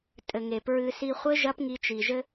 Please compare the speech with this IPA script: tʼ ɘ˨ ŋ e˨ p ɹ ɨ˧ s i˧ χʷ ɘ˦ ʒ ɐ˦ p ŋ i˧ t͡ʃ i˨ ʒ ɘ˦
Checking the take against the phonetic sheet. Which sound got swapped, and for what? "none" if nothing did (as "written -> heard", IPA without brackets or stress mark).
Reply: none